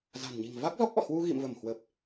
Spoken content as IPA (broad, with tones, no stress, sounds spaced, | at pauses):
z a̤˨˩ n ɲ i̤˨˩ ŋ v a˦˥ k̚ z ɔ˦˥ k̚ ʔ ɔ̰˧˨ h w u˧ ɣ ḭ˧˨ m v ə˧˩ m h w əː˨˩ p̚